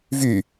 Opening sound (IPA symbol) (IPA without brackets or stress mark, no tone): v